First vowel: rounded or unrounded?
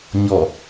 rounded